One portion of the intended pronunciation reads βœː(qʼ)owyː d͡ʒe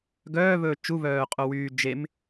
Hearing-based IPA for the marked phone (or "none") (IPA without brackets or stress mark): qʼ